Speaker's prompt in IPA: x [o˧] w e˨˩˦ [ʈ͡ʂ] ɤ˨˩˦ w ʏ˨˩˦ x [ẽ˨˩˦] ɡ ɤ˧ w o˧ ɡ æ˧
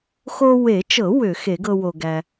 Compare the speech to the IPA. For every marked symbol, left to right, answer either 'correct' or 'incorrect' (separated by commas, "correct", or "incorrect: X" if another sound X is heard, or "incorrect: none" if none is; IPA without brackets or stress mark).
correct, incorrect: t͡ʃ, incorrect: e˨˩˦